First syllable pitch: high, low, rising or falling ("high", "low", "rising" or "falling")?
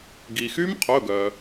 low